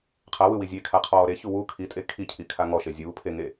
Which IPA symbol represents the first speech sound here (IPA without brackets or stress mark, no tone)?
qʰ